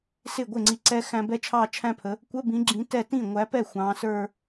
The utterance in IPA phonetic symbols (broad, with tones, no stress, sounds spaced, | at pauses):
s ɪ˥˩ ɡʷ ɪ˥˩ ŋ͡ǀ i˨˦ ǀ ɛ˥ x æ̃˥ b ɛ˥˧ t͡ʃʰ ɑ˥˧ t͡ʃʰ æ̃˥ pʰ ə˨˦ | kʷ ə˧˥˧ b ĩ˨˦ ɡ͡ǁ ĩ˨˦ t ɛ˥˩ t ĩ˥˩ ŋʷ æ˨˦ p ɛ˥˩ xʷ ɑ̃˨˦ s ə˞˥˧